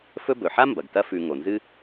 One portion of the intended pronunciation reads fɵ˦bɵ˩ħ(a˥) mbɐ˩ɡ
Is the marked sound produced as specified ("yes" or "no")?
yes